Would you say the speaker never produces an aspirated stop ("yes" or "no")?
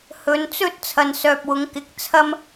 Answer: no